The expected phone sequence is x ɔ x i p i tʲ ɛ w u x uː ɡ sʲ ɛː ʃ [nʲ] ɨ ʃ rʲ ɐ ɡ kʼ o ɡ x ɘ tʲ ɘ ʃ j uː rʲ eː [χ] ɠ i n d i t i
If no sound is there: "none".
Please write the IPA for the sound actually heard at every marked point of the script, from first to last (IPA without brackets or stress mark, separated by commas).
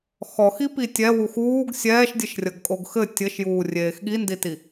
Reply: dʲ, x